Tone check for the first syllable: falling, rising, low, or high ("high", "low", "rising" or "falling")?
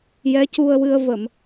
rising